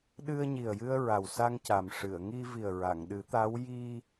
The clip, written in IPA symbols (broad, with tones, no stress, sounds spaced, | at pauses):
ɗ ɨ˧ ə̯ ɲ i˨˩ ə̯ j ɨ˧ ə̯ ɹ a˨˩ w s a˧ ŋ c a˨˩ m ʂ ɨ˨˩˨ ə̯ ŋ i˧ v i˨˩ ə̯ ɹ a˨˩˨ ŋ ɗ ɨ˨˩˦ t̪ a˧˥ w j i˧